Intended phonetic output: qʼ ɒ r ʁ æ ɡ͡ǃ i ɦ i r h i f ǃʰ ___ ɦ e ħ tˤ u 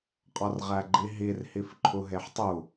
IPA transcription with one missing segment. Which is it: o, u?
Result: u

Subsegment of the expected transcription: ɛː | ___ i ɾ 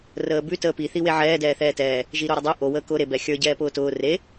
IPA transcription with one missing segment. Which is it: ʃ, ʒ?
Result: ʒ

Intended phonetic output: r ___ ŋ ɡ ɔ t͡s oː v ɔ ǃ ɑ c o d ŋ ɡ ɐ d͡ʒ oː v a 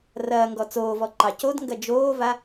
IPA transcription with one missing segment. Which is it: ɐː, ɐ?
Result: ɐː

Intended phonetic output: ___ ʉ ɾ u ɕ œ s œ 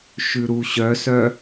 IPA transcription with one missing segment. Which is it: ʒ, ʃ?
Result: ʃ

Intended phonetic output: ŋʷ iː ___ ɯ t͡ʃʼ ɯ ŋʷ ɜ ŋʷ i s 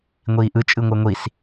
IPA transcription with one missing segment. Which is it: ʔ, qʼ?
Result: ʔ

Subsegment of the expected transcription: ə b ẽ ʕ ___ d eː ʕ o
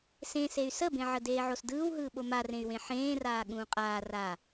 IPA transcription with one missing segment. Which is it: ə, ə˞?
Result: ə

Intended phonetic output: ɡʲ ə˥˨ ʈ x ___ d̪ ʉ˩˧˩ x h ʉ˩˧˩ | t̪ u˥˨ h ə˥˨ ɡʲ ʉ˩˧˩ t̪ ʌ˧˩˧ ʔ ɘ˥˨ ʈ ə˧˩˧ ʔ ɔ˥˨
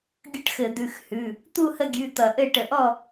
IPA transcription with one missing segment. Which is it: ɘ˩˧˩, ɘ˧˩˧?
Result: ɘ˧˩˧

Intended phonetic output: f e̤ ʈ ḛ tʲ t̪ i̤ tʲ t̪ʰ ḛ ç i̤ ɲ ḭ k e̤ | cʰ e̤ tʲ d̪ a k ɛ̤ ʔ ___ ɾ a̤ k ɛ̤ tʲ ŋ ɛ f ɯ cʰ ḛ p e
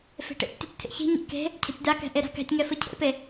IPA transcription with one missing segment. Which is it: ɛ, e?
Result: e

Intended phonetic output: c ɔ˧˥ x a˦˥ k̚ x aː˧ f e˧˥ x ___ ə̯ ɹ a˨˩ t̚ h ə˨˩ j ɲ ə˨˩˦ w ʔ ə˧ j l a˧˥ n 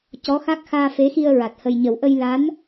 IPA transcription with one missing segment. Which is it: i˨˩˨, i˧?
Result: i˧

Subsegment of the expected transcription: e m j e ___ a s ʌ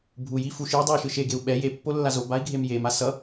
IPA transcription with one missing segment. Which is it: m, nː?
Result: m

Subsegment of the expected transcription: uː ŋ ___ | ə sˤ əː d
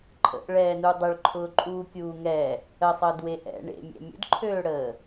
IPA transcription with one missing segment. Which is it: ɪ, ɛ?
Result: ɛ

